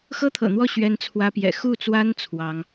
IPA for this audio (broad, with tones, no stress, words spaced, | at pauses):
xɤ˥t̪ʰɤ̰˨˩n̪wɔ˥˩ ɕɥɛ˥nt͡sʰwä˥pjɛ̰˨˩ xu˥˩t͡swa˥n t͡sʰwɑ˧˥ŋ